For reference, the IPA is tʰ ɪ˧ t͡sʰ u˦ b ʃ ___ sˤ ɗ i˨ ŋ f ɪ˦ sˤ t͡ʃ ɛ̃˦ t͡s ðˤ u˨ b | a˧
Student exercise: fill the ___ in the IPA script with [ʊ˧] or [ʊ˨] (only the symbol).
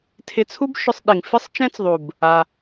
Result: ʊ˧